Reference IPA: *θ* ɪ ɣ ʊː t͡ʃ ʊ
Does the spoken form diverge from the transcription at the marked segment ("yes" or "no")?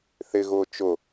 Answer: no